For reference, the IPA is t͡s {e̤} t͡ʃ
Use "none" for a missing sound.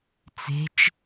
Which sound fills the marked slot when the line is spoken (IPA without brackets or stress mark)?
e̤